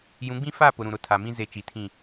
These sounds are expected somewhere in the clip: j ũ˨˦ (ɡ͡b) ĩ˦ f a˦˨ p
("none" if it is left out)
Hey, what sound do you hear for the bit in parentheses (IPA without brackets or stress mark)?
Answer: ɡ͡b